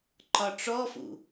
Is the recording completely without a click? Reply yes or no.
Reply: no